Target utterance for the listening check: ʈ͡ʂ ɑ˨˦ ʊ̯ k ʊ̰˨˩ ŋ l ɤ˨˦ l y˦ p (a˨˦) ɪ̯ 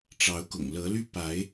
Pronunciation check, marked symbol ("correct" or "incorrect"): correct